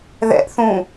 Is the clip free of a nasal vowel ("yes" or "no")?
no